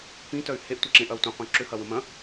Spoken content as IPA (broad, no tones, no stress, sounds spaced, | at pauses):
p ĩ t œ y̯ h e ʔ tʷ ɐ ǁ ẽ ʔ ɐ u̯ tʷ ẽ qʷ œ̃ ǁ ʏ h ɐ w ə̃ m ɐ̃